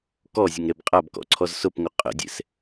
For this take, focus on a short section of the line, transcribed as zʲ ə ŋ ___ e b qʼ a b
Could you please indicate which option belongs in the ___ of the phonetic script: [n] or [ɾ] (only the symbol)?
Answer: ɾ